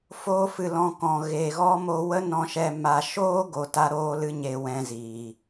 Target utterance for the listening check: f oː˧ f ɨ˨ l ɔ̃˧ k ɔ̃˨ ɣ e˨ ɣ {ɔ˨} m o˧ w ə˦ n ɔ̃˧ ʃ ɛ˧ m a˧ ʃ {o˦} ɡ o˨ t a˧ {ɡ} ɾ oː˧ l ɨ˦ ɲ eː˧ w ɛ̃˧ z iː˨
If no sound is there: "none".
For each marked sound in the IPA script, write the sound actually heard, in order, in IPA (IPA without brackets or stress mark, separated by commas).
ɔ˦, oː˦, none